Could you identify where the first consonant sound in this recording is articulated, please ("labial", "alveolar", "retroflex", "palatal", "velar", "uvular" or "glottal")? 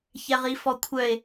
palatal